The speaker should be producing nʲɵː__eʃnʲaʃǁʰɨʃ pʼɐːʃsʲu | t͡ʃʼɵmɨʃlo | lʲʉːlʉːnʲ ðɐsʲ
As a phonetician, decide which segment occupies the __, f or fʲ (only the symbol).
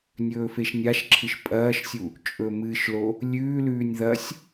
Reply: f